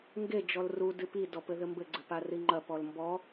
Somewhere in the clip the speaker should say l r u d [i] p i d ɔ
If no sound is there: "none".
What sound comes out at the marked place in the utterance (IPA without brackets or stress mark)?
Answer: ɨ